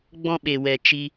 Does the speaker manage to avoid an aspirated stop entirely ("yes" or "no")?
yes